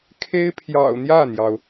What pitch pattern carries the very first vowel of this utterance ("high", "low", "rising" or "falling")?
high